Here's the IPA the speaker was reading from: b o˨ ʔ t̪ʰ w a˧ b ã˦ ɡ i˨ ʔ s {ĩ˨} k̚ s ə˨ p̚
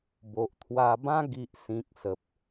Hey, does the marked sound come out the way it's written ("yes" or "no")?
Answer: yes